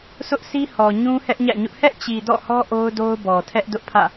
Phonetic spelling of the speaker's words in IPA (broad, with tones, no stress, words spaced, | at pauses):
sʰʊ˦ʔsi˦ hɔ˨ɲũ˦ hɛ˦ʔɲä̰˦˨ɲʊ˦ʔ hɛ˦ʔt͡ɕi˨ dɔ̰˦˨hɔ˦ ʔo˦ʊ̯do˦ʊ̯ bɔ˨ tʰɛ˦ʔdʊ˦ʔpʰä̰˦˨